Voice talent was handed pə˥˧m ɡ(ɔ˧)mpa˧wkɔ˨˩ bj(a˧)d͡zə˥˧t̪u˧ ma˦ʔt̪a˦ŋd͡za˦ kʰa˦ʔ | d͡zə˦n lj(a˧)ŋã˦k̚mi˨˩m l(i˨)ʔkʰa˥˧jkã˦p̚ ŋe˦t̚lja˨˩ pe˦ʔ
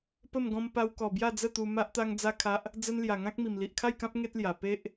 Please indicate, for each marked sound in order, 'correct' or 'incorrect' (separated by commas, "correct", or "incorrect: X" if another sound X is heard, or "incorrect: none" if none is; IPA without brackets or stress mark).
incorrect: ɔ̃˧, incorrect: a˥˧, incorrect: a˨˩, correct